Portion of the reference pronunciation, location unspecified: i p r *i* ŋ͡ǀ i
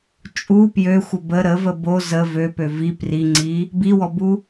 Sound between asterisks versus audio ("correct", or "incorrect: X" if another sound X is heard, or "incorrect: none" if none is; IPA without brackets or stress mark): correct